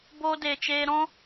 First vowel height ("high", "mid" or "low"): mid